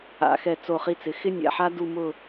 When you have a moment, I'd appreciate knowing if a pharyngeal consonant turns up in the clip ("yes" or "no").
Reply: yes